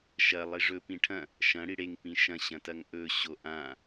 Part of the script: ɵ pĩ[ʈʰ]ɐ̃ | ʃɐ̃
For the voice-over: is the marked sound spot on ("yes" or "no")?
yes